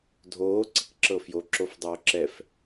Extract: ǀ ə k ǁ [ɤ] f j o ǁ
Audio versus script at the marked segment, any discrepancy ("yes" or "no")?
no